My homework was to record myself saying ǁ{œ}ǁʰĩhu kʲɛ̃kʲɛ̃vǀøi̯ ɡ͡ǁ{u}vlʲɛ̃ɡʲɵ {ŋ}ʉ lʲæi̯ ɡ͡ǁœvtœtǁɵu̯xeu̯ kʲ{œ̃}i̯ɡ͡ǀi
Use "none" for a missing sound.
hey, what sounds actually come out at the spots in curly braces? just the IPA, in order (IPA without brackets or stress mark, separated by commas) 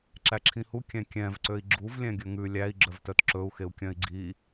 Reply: æ, u, ŋ, œ̃